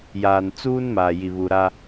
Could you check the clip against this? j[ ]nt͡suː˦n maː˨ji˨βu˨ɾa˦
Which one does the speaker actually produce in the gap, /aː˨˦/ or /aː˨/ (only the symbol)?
aː˨